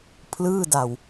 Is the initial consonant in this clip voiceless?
yes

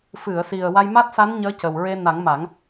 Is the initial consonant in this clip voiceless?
yes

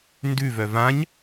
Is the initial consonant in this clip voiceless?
no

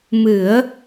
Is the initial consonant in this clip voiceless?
no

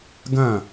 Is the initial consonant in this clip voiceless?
no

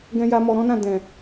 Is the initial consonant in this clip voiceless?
no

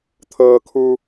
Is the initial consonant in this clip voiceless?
yes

